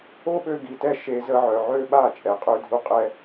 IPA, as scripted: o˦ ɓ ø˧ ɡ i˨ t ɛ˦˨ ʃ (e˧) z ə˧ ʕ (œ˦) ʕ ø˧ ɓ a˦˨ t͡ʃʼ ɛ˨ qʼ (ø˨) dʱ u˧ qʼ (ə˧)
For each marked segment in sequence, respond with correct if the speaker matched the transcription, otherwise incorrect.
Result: correct, incorrect, incorrect, incorrect

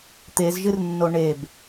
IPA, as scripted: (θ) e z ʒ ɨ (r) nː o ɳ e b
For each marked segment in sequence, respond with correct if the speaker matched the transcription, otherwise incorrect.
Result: incorrect, correct

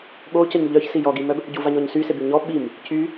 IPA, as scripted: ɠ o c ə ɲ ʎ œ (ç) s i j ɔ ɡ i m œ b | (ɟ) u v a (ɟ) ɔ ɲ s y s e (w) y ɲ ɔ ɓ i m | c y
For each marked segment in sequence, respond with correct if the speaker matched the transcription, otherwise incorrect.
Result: correct, correct, incorrect, incorrect

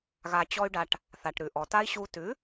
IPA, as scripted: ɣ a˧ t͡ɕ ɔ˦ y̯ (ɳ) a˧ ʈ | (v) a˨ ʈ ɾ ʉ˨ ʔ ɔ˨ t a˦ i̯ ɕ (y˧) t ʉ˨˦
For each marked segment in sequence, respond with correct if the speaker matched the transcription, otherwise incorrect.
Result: incorrect, incorrect, incorrect

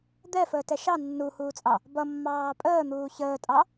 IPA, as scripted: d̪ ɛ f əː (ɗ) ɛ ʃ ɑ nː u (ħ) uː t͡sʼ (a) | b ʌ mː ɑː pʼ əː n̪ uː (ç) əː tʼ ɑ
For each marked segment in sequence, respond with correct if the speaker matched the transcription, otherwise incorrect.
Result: incorrect, incorrect, incorrect, correct

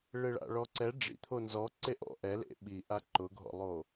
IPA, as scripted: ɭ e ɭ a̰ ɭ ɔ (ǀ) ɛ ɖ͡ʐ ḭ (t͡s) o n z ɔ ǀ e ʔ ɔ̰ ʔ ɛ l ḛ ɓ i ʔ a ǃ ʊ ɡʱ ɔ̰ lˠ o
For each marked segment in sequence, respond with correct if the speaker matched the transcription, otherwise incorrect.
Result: correct, incorrect

